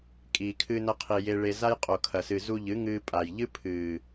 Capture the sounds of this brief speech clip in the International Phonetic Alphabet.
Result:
kʼ iː˨ kʰ ɨː˧ n ɐ˧ qʰ i˨ j e˧ ɭ e˧ z a˦ j qʼ o˨ kʰ ɐ˨ s ɨ˨ z u˧ ʎ ɨ˨˦ ŋ ɨː˧ pʼ a˨ j ʎ ɨ˦ pʰ ɨː˨

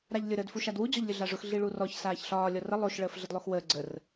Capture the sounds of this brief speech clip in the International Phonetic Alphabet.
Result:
ɾ a ʎ lʲ ʊ ɾ əː d f u ʃ a d w u d͡ʑ ɔ ʎ lʲ ʊ ɮ a ʐ ʊ x ɮ i ɭ u r ɔ ç s aː ç ɬ ɒː lʲ ɔ r ə lˠ o ʃ ɭ əː f ɮ ə d lˠ o x w əː ɡ͡ǀ ə r

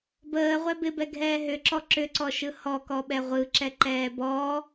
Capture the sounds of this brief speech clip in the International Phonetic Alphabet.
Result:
b əː ʁʷ ɛ b ɪ b ɛ ɡʱ ɛː ɦ ʏ ǁ ɔ ǁ ʏ ǀ ɔ ʃ ɯ h ɔ k ɔ ɓ ɛ ʁʷ ɯ ǁ ɛ ǃ ɛː b ɔ

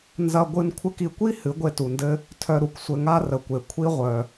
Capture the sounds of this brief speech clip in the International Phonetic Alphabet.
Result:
n z ɐ˧ ɡʷ ɨ˧ n kʷʰ ɘ˧ k i˨ kʷ i˦ h ɨ˨˦ ɡʷ e˧ t u˨ n d ɘ˧ | tʰ œ˧ ɾ u˨ k sʷ ɘ˧ ŋ a˦ r ə˨ kʷ e˨ kʷʰ i˦ ʁʷ œ˨

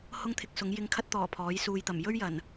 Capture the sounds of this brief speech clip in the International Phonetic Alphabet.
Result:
h ʊ˥ ŋ t̪ʰ ɪ˧ k̚ s ʊ˨˥ ŋ j ɪ˧ ŋ kʰ ɐ˥ t̚ t̪ ɔː˨˩ pʰ ɔː˨˥ j s uː˨ j t̪ ɐ˨˩ m j ɵ˥ ɥ j ɐ˨˩ n

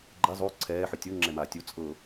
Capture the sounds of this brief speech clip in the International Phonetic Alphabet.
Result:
ɡ͡ǃ ɛ zˤ o ǀʰ ɛː ħ ɯ tʲ o ŋ͡ǁ ɛ m aː tʲ u t͡sʼ ɤ

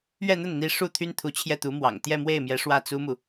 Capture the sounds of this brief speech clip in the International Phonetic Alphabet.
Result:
ɥ ɛ˥˧ n̪ ə˥˩ n n̪ i˧˥ ʂ u˥˩ t̪ʰ y˥ n t̪ʰ u˧˥ t͡ɕʰ j ɛ˥˩ t̪ u˧˥ m w ɑ̰˨˩ ŋ t̪ j ɛ˥˧ m w e˥˩ ɪ̯ m j ɛ˧˥ ʂ w ä˥˩ t͡s u˥ m u˨

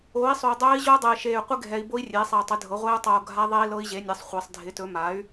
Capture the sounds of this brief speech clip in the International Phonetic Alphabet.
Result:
oː˩˥ i̯ sˤ o˨ u̯ dˤ ɵː˦˥ i̯ ʑ o˦˥ dˤ e˨ i̯ ʃ eː˨ y̯ qʷ ɪ˦˥ ɡʱ ɛ˨ i̯ b o˦˥ i̯ rʲ eː˩˥ sˤ e˨ u̯ tˤ ɪ˩˥ dʱ ɤ˩˥ ʁʷ eː˦˥ u̯ tˤ oː˨ ɡʱ a˦˥ ðˤ e˦˥ i̯ l ɤ˦˥ i̯ ʑ e˩˥ nʲ ɛ˩˥ sˤ χʷ ɪː˨ sˤ dʱ ɪ˩˥ t ɵ˩˥ m a˩˥ y̯

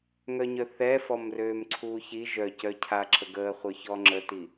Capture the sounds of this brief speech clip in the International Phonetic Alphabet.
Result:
ŋ œ ɲ œ θ ɛ f ɔ m r øː m ǀʰ uː ç i ʒ œ c œ cʰ a ǁʰ ə ɡ əː χʷ œ ç ɔ ŋ͡ǁ ə t i

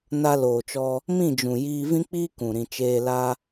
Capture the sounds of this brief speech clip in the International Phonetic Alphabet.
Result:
n a˧ l oː˨ t͡ʃ ɔ˧ | m ĩ˦˨ d͡ʒ ũ˨ j iː˧ v ĩ˦ k͡p iː˦ k ũ˨ ɾ ĩ˧ t͡ʃ eː˦ l a˦

